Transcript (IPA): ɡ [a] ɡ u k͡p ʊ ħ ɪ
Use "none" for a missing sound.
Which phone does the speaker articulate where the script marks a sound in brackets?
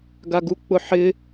a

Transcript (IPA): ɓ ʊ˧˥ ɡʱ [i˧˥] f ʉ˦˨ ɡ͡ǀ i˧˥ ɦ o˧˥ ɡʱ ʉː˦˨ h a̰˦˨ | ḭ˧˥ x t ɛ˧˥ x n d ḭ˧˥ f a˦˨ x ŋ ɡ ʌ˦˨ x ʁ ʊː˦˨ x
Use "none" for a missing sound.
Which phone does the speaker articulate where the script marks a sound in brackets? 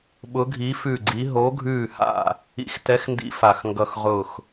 i˧˥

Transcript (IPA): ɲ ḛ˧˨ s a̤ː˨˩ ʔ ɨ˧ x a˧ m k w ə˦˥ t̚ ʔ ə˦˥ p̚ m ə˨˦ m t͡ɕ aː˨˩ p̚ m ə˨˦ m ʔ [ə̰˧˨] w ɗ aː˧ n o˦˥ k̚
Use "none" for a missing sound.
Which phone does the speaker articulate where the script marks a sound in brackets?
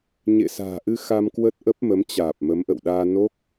ə̰˧˨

